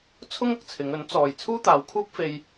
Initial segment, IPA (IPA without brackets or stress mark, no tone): t͡sʰ